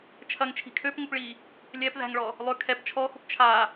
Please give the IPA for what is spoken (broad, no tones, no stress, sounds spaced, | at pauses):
t͡ʃʰ ɐ ŋ t͡ʃʰ i̤ kʰ ø p ŋ ʊ p ɭ i | lʲ ɛ p ð æ̤ ŋ ɭ ɔ | lˠ ø kʰ ɛ p t͡ʃʰ ɔ x ʊ p t͡ʃʰ a